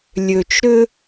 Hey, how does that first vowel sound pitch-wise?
low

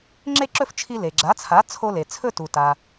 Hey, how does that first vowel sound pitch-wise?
falling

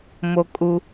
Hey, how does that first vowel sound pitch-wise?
high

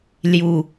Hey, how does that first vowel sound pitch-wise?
low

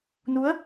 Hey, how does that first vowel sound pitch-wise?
rising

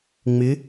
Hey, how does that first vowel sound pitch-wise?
rising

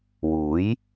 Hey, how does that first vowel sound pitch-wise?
rising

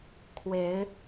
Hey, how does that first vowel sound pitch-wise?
rising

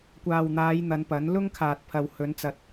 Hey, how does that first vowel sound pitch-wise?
low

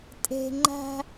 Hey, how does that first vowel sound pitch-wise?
low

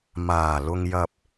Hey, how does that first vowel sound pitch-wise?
low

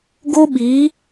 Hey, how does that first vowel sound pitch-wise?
high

